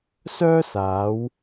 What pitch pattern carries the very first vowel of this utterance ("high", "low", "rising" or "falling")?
high